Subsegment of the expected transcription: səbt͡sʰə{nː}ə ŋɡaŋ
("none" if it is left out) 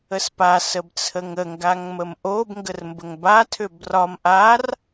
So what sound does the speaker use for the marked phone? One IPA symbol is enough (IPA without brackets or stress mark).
ŋ